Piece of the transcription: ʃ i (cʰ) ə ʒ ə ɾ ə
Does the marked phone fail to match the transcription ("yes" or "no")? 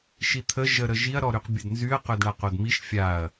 yes